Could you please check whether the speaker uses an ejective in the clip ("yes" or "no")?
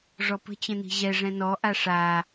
no